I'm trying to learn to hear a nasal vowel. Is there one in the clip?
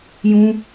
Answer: yes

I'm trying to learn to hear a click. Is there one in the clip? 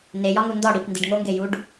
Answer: no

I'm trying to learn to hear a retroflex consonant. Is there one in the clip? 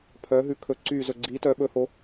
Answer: no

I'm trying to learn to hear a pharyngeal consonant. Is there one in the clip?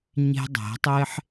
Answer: yes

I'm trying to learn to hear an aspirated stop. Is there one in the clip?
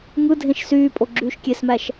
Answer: no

